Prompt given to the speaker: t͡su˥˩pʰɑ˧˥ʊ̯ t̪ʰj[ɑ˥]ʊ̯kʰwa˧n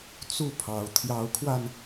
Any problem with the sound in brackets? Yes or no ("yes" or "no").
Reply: yes